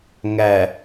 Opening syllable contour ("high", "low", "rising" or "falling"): low